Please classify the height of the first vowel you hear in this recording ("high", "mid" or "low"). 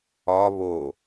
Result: low